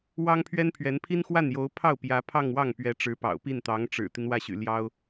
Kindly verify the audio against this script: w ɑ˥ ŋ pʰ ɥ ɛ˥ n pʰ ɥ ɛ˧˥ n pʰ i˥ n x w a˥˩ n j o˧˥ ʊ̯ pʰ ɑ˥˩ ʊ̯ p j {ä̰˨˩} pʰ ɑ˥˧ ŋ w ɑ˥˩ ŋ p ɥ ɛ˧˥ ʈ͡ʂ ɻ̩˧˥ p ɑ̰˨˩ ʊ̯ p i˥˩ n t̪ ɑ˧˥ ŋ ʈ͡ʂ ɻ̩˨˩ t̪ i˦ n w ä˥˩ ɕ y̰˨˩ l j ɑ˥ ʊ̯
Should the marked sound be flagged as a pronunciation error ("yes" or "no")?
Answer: yes